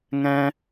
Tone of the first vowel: high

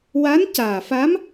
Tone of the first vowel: rising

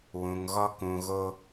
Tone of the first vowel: low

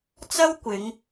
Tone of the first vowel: high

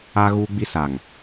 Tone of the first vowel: high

